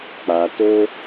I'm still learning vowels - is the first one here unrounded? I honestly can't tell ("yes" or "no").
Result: yes